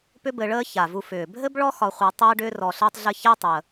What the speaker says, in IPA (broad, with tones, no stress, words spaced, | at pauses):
pʏ˦bɘ˨ɭəː˦ ça˩vu˨fʏː˩bʱɘ˥b ɭɔ˥xɒ˨χʷæ˨ tˤəː˦ɖʏː˦ rɔ˨ɬəː˦tˤɮɘ˦ çæ˦tˤəː˩